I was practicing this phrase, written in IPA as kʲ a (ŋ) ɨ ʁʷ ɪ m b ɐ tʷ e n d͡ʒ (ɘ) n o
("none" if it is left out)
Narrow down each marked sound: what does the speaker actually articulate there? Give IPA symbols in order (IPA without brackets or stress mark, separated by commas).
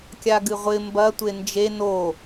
ɡ, e